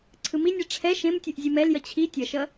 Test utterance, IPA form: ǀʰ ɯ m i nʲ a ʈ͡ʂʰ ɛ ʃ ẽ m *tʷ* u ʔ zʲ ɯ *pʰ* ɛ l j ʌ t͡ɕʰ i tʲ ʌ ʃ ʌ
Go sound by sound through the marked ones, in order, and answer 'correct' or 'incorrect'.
incorrect, incorrect

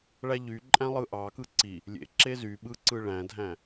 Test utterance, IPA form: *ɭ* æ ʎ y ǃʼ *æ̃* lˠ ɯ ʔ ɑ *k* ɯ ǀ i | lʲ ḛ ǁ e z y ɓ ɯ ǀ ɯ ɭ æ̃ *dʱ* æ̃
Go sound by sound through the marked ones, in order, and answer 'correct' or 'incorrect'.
correct, correct, correct, correct

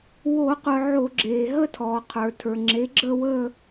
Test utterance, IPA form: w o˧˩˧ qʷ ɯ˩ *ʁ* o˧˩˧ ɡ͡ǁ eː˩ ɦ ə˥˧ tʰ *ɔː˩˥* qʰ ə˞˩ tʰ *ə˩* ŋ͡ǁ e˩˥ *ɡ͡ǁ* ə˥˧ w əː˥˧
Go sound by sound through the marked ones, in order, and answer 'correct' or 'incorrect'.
incorrect, incorrect, incorrect, correct

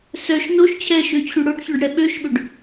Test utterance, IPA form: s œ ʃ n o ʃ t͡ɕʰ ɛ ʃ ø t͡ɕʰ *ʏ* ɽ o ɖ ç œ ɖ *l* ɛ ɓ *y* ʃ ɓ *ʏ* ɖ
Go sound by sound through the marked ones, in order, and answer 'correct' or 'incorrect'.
incorrect, incorrect, incorrect, correct

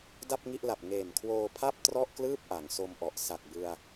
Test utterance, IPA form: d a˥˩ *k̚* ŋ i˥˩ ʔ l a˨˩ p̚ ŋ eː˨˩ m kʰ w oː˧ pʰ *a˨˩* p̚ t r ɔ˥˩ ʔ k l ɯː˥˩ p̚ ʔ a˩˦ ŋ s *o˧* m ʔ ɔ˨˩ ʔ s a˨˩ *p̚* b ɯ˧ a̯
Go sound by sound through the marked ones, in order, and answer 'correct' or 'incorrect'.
incorrect, incorrect, correct, incorrect

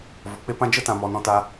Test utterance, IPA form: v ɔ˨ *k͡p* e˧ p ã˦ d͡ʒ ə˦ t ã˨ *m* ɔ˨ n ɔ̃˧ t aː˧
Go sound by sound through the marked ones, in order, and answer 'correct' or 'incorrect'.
correct, correct

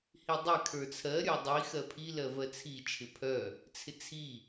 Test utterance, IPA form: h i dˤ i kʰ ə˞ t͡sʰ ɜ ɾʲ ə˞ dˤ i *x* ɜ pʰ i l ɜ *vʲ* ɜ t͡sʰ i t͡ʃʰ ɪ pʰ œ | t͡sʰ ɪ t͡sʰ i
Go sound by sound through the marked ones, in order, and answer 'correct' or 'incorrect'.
correct, incorrect

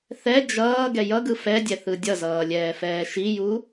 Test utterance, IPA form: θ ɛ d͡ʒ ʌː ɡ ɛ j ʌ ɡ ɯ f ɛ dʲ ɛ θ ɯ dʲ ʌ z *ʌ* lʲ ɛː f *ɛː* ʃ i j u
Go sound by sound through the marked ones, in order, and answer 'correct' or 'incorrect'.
incorrect, correct

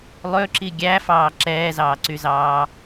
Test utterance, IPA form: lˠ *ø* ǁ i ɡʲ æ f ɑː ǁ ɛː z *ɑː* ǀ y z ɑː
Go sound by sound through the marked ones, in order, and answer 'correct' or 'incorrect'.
correct, correct

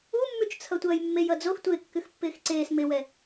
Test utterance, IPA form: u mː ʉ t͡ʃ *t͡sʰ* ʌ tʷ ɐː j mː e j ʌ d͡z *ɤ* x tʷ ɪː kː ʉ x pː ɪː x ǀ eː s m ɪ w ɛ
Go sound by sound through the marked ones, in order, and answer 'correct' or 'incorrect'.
correct, incorrect

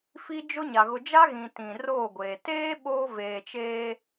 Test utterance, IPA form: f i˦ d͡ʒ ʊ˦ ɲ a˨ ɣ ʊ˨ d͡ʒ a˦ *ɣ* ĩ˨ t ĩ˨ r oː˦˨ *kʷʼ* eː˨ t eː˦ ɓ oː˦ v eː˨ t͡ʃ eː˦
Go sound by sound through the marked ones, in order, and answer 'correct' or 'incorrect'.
correct, incorrect

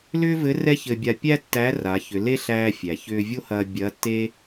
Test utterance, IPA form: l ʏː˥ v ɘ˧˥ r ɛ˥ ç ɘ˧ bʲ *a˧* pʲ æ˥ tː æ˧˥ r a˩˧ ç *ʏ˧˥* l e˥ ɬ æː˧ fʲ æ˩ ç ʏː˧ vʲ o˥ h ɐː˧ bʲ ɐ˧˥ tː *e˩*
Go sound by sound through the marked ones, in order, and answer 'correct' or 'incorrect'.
correct, incorrect, incorrect

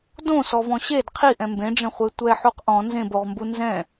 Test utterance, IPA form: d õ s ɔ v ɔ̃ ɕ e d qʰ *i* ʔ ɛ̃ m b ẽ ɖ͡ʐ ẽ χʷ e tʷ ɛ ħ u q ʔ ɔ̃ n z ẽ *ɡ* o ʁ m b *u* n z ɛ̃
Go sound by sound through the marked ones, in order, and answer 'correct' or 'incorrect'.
correct, incorrect, correct

